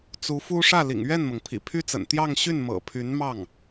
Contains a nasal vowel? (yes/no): no